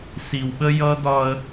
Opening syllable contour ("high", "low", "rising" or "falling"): low